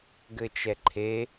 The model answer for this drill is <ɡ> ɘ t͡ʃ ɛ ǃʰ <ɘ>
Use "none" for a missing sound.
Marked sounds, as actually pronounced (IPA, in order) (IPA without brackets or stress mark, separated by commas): ɡ, e